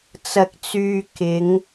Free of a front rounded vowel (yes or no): no